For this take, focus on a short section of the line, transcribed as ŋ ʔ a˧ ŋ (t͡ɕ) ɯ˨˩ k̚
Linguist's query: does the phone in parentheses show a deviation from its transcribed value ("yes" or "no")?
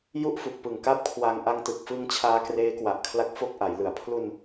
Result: yes